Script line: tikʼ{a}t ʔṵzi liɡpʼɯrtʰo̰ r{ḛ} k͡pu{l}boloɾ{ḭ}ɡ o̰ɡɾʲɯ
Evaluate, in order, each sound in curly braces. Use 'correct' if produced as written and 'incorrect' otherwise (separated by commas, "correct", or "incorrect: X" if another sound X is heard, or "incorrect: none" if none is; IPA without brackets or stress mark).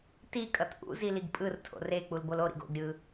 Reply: incorrect: ʌ, incorrect: e, correct, correct